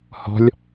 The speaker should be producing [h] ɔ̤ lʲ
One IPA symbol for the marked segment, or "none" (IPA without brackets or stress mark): h